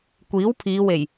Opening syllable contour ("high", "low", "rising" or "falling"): rising